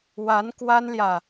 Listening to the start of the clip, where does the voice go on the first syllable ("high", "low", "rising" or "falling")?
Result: rising